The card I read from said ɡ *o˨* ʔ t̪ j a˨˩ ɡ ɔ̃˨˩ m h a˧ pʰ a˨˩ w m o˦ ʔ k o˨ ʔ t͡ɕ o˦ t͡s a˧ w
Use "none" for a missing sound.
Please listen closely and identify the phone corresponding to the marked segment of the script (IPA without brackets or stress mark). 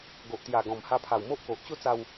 o˨